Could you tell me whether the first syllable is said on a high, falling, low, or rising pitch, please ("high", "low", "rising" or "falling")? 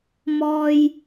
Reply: low